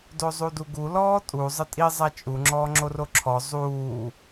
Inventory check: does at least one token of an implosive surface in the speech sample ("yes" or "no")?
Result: no